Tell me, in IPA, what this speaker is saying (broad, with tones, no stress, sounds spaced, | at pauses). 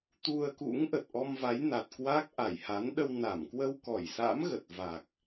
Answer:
t̪ u˧ ə̯ k ṵ˧˥ ŋ ʔ ə˨˩ t̚ ʔ ɔ˧ m v a˨˦ j n a˨˩ t̚ k w a˦˥ k̚ ʔ a˧˩ j h a˨˦ n ɗ ə˧ w n a˧˩ m k w ə˧ w k ɔ˧˩ j s a̰˧˥ m ɣ ə˨˩ t̚ v a˨˩ k̚